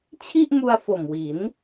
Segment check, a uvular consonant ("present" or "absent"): absent